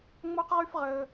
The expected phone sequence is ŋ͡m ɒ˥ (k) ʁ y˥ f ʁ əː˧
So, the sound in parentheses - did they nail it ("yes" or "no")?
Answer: no